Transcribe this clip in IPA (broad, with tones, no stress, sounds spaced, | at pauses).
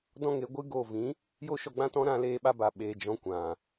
d ɔ̃˦ ŋ e˨˦ ɡʷ ɨ˦ ɡ o˦˨ v ĩ˨˦ | j o˦ ʃ ɔ˧ ɡ͡b ã˦ t ɔ̃˦ ɾ ã˧ l eː˧ ɓ a˧ b a˨ ɓ eː˨ d͡ʒ ɔ̃˧ kʷ ã˨